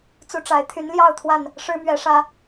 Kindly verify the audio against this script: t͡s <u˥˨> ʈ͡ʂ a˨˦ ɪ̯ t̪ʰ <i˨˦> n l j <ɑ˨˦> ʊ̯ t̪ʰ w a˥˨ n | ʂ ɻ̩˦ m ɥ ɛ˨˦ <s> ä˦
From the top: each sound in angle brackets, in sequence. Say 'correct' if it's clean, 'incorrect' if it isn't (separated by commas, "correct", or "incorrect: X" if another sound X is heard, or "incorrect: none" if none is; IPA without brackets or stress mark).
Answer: incorrect: u˦, incorrect: y˨˦, incorrect: ɑ˥˨, incorrect: ʂ